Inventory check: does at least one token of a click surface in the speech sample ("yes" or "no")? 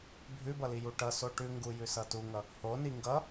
no